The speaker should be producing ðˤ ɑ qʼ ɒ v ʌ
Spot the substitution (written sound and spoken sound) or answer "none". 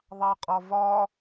ʌ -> ɒ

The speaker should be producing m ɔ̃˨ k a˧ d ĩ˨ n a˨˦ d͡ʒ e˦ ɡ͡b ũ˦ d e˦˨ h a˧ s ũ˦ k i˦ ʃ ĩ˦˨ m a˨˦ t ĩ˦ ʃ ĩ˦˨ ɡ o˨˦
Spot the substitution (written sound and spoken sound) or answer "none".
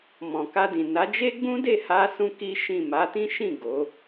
none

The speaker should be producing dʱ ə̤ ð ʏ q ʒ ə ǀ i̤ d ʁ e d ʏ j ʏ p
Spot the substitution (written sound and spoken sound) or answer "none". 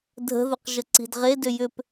none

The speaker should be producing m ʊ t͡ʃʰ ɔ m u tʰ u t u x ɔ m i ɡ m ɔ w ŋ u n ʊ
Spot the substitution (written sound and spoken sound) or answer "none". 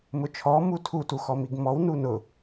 ŋ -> n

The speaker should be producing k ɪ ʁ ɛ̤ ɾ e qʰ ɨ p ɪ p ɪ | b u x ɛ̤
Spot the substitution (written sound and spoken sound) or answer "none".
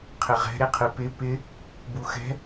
k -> qʰ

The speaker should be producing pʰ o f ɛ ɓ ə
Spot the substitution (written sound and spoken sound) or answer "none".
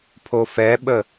none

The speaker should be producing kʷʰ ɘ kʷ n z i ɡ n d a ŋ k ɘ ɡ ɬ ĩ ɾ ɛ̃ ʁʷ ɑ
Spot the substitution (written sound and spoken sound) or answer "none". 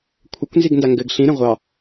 k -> ɡ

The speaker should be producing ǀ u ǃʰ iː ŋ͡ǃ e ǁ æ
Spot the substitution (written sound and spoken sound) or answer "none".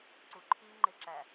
none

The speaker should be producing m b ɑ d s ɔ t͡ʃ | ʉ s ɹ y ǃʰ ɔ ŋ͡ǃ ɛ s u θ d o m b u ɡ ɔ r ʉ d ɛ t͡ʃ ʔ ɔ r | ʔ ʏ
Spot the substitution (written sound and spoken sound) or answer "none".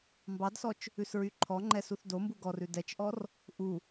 ʏ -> u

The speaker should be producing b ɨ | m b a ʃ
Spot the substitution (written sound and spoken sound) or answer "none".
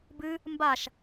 none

